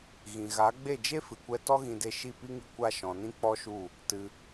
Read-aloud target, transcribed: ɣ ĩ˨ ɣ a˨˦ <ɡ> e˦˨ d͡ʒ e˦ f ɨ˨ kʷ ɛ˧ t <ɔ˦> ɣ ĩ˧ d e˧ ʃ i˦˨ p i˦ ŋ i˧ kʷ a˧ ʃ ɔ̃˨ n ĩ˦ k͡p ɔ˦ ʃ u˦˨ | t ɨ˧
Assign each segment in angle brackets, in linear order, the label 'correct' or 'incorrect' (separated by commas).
incorrect, correct